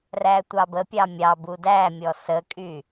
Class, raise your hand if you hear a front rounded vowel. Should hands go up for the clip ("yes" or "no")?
yes